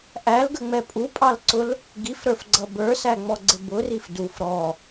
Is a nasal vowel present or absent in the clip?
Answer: absent